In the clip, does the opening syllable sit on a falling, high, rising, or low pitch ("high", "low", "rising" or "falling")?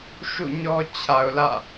falling